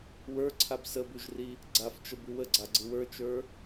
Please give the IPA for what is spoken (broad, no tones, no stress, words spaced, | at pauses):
wə˞ǀʰab səbʉʒri | ɡ͡ǀaft͡ʃə bʉwəɡ͡ǀaɡ͡ǀɯ wə˞t͡ʃə˞